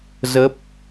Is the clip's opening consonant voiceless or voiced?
voiced